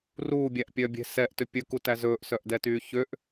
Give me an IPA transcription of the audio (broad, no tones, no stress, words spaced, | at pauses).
ruːbʲæʔpʲœːbʲe̤ sɛʔtø pʲɵkutæ zɵːʔsœʔdɛtyː çøʔ